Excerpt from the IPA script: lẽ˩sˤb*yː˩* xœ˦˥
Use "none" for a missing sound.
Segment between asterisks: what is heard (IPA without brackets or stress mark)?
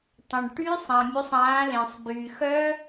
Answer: yː˩